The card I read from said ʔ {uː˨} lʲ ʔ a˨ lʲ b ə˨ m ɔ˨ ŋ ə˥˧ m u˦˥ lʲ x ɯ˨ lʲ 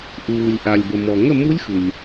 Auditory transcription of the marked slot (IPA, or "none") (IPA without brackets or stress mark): uː˨